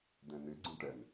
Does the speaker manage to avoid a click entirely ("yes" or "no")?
no